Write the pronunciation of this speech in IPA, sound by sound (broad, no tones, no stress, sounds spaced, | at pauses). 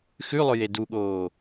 x ʉ lˠ ɵ j e d u ɠ oː